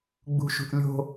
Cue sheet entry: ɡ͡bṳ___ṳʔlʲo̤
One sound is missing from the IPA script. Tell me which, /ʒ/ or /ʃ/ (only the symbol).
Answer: ʃ